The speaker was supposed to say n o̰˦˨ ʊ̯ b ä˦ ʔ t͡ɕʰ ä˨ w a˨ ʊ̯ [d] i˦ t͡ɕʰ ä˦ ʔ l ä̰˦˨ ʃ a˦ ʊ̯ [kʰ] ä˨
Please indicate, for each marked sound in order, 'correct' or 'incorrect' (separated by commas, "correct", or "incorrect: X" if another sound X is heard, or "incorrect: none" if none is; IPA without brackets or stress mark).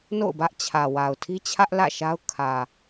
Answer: incorrect: tʰ, correct